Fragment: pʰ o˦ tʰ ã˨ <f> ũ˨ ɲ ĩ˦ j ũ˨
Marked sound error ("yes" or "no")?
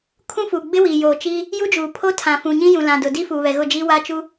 no